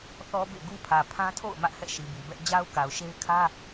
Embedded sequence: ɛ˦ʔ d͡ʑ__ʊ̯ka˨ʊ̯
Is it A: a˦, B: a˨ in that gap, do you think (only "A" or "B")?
A